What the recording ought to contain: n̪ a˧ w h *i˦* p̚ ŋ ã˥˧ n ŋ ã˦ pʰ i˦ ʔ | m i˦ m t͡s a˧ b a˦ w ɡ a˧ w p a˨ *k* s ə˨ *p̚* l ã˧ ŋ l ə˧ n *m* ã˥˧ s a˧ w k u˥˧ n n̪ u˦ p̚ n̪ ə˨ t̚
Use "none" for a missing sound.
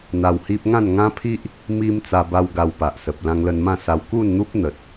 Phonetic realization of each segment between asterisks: i˦, ʔ, p̚, m

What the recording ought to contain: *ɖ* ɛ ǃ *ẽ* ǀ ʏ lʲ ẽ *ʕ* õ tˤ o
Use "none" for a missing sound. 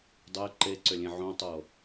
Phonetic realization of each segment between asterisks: dˤ, e, ʕ

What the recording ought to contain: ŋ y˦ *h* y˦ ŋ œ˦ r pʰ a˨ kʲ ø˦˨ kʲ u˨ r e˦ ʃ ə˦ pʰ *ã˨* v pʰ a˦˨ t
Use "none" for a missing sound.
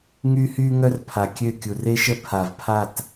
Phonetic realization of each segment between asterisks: h, a˨

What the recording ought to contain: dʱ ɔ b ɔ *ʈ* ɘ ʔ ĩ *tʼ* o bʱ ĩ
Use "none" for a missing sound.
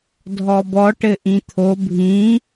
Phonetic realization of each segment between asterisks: ʈ, t̪ʰ

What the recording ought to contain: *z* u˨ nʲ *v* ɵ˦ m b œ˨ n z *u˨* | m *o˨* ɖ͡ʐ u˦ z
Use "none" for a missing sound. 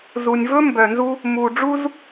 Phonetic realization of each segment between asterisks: z, v, u˦, u˨

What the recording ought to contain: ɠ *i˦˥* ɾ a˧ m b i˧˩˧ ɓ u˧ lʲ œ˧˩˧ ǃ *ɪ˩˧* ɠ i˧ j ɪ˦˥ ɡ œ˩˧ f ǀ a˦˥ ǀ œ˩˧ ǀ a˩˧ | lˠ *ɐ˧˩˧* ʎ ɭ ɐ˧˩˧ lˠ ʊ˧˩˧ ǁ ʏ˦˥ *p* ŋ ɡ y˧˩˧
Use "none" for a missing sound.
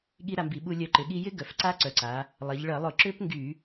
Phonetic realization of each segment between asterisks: i˦˥, ɪ˩˧, ɐ˩˧, p

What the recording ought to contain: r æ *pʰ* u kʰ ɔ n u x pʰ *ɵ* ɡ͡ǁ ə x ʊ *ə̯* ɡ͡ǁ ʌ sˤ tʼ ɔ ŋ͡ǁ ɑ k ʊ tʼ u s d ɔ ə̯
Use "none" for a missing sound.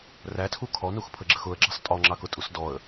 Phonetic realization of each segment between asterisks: tʰ, ə, ə̯

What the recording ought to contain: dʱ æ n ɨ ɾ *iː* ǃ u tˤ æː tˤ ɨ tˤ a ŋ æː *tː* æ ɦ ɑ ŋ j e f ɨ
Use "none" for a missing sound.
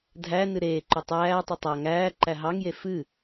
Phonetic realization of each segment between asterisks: eː, ǃ

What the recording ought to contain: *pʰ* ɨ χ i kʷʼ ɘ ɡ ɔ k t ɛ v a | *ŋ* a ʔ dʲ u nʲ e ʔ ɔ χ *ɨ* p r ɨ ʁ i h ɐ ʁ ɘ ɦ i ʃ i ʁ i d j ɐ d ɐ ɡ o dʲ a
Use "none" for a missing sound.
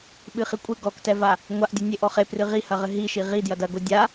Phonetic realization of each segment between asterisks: ɓ, ŋʷ, e

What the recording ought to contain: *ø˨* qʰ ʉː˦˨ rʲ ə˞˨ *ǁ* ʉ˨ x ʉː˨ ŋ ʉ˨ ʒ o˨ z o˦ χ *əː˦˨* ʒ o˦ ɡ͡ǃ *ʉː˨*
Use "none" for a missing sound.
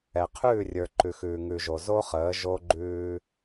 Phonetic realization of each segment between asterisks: ɛ˨, ǃ, əː˨˦, ʉː˦

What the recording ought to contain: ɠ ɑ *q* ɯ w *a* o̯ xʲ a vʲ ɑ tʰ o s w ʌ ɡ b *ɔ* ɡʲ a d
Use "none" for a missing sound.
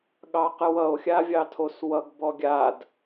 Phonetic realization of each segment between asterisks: q, ʌ, ɔ

